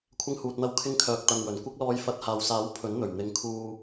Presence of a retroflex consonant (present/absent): absent